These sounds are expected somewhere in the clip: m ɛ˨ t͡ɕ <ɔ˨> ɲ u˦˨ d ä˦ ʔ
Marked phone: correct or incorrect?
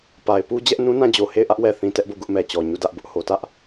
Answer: correct